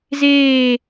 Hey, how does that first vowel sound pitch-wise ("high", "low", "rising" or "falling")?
falling